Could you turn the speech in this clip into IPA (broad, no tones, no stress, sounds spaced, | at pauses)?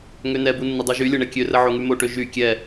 ŋ ø n ɛ b u nː ə dˤ u ʒ y lʲ ɤ ɳ ɛ kʲ ø r ə ʕ o ŋ y m o ʈ ø ʒ y kʲ ɛ